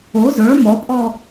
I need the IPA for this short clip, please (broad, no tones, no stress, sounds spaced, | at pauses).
o z ə˞ m ɔ pʼ ɔ